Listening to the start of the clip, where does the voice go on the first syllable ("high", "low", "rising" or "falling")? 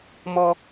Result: high